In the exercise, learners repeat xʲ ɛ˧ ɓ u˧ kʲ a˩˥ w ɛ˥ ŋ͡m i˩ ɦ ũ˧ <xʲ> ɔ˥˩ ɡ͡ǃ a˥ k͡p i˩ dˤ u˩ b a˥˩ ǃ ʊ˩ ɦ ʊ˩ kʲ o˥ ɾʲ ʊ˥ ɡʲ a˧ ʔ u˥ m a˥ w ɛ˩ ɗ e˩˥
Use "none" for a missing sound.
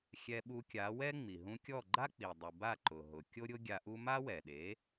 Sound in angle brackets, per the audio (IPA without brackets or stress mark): kʲ